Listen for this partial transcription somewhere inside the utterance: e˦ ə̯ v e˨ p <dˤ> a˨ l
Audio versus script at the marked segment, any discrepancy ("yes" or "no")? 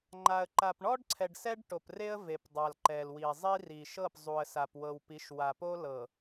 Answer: no